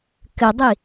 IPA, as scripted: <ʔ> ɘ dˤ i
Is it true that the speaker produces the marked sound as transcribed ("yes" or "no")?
no